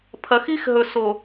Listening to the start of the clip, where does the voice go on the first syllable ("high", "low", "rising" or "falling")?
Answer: low